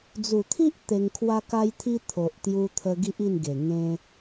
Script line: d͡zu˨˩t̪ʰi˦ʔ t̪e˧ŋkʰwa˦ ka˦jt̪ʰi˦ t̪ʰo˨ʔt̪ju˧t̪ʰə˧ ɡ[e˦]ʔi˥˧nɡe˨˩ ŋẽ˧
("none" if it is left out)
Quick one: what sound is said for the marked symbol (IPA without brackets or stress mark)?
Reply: i˦